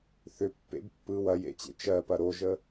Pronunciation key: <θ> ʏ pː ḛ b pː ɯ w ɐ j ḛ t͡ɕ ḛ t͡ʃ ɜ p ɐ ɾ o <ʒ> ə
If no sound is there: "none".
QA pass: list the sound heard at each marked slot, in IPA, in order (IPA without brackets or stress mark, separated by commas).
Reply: θ, ʒ